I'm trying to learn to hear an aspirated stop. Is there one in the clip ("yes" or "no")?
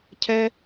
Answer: yes